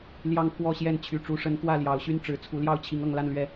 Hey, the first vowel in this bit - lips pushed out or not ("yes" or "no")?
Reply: no